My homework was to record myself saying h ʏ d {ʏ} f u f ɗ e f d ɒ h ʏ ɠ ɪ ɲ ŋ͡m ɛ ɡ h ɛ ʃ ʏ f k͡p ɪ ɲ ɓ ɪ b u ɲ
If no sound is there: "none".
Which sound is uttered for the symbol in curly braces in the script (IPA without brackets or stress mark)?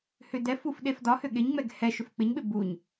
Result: ɛ